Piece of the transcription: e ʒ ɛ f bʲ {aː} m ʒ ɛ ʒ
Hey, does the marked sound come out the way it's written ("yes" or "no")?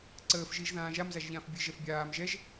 yes